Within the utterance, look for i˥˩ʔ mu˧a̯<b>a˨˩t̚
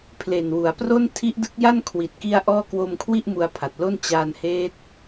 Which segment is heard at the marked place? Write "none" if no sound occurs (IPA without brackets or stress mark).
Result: pʰ